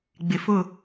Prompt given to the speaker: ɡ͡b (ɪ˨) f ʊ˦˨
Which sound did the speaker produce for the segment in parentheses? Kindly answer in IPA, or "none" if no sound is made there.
ɪ˨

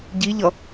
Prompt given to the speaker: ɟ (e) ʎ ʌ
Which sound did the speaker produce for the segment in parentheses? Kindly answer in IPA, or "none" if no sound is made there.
i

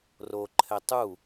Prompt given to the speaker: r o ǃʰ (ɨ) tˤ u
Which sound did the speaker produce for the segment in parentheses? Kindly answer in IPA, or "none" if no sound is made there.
ɛ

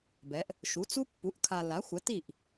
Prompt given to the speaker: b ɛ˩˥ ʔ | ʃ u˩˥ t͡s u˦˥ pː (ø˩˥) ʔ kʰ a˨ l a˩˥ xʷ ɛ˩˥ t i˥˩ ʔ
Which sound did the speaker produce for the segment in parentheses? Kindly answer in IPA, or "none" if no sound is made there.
u˩˥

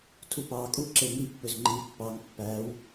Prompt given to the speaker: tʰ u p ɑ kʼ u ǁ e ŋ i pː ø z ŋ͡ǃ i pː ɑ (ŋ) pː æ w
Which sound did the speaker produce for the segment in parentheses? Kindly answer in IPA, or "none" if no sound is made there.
ŋ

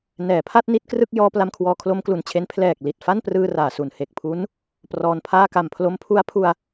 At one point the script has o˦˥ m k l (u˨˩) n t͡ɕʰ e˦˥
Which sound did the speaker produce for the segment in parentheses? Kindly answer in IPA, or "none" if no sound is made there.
u˨˩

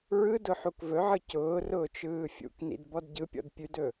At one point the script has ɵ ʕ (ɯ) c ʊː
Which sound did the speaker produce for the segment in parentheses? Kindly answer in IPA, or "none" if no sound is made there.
ɯ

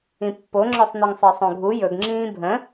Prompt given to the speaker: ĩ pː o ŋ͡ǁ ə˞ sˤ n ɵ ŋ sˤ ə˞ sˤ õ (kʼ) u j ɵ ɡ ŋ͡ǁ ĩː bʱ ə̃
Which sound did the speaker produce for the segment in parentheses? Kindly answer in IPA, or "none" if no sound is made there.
ɡʱ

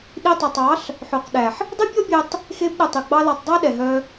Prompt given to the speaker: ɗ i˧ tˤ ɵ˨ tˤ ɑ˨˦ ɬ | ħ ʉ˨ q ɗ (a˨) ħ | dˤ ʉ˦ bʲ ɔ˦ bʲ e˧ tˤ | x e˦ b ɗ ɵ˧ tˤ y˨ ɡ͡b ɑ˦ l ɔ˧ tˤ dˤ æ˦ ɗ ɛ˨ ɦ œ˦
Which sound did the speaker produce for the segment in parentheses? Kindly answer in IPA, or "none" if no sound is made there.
æ˨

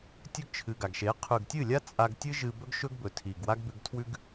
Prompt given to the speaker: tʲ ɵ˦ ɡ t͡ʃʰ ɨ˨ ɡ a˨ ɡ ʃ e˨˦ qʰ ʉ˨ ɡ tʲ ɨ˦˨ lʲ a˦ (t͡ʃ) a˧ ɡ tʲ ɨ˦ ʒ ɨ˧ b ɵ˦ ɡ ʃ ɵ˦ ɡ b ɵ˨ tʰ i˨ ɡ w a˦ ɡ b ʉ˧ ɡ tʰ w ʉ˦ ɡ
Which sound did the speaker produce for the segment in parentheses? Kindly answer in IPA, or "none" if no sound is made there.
t͡sʼ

